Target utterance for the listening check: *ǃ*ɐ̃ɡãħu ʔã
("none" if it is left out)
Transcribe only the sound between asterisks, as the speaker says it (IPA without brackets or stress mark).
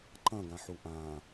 ǃ